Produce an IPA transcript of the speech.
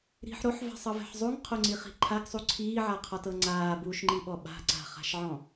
ɾ i̤ ħ ɾ o ħ v a̤ sˤ ɤ v ɛ̤ ħ zˤ u ŋ qʰ o ŋ͡ǀ i χ i̤ ǃʰ a ɡ sˤ u ǀʰ iː ʕ a qʰ ɔ t ɤ ŋ͡ǀ aː b uː ʃ ŋ͡ǃ i ɓ ɔ ɓ a̤ ǀ a̤ χ a̤ ʃ ʕ ɔ̃

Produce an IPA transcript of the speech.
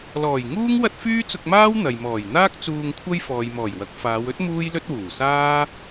l ɔː˨˩ j ŋ uː˥ ŋ w ɐ˥ t̚ f yː˥ t͡s ʊ˧ k̚ m aː˥ w n̪ ɐ˨ j m ɔː˨˩ j n̪ aː˥ k̚ t͡s uː˧ ŋ kʷʰ ɐ˥ j f ɔː˨ j m ɔː˨˩ j w ɐ˨˥ k̚ f aː˨˧ w ɵ˥ t̚ m uː˥ j l ɵ˥ t̚ w uː˨˩ s aː˥

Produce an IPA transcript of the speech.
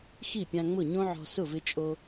x i˥˩ pʲ ã˧ ŋ͡m ʊ˥˩ ɲ õ˥ ʕ ɔ̤˧ s ʊ˥˩ v ɪ˧ t͡ʃʼ o˧

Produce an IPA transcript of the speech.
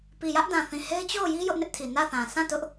p i˨ j ä˦ ʔ d ã˨ θ ĩ˨ h e˦ ɪ̯ t͡ɕ o˦˨ ʊ̯ j i˦ j ʊ˦ ʔ n ɪ˦ ʔ tʰ i˨ n ä˦˨ θ ã˨ sʰ ã˦˨ t ʊ˦ ʔ

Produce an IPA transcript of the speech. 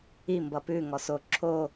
i m b ʌ p ʉ ŋ ɔ s o ǁʰ o

